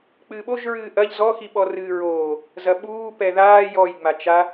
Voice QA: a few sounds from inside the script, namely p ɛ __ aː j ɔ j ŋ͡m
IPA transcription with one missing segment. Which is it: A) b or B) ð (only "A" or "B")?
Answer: B